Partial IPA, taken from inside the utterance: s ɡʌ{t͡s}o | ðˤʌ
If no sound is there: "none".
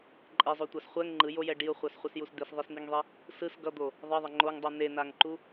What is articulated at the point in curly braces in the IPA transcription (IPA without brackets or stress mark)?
d̪